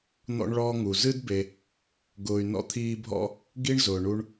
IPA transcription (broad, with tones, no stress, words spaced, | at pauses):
n̪ɔ̰˦ɳɭɔː˦ ŋu˩ zɨ˥dbe˨ | ɡʊː˨y̯nɔ̰˦t̪ʰiː˦bʱɔ̰˥ | ɡi˥ɳzʊː˩ ɳu˦ɳ